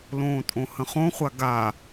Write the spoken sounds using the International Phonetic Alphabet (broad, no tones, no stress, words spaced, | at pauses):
lõːtʼõhə̃χõ χʷaɡa